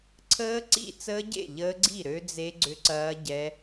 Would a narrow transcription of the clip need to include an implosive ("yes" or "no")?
no